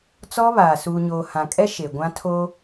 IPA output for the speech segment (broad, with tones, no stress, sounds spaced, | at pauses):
t͡s ɔ˦ β aː˨ s uː˨ ɲ oː˨ h ã˨ kʼ ɛ˦ ʃ e˨ ɡʷ ã˦ tʰ oː˦